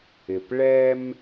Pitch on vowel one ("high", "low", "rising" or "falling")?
low